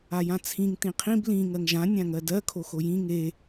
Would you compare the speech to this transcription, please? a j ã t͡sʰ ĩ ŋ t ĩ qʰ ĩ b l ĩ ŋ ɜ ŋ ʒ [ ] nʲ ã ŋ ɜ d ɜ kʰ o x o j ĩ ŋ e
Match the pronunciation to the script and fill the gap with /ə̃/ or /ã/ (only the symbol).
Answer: ã